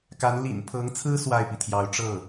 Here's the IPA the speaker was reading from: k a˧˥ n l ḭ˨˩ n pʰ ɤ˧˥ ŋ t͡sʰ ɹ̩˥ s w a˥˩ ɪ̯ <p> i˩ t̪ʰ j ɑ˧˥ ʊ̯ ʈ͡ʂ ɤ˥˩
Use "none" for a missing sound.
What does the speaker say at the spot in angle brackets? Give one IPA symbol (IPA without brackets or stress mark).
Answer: p